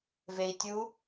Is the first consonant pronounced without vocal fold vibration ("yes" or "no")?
no